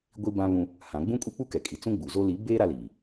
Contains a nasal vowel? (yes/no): yes